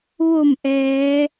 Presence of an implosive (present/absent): absent